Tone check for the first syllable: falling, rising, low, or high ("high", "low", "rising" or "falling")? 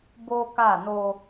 high